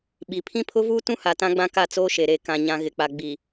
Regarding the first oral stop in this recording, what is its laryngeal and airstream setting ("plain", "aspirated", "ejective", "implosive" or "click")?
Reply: implosive